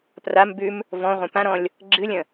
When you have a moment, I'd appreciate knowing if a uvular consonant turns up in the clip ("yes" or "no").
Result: yes